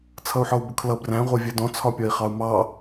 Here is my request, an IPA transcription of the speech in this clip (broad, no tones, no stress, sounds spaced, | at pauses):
t͡sʰ ʌ u̯ ħ ɔ u̯ b ʊ kʰ l ʌ b r æ̃ ʁʷ ɜ vʲ ɜ d ɔ̃ t͡sʰ ɒ pʲ ɒ i̯ χ ɑ u̯ m ɑ